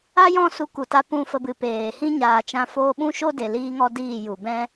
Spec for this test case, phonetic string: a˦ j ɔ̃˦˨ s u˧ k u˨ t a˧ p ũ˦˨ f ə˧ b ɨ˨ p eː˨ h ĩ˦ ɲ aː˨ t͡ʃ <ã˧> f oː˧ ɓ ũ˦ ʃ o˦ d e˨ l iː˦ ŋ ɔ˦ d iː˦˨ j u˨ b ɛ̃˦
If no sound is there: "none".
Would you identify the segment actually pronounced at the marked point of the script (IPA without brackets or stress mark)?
ã˧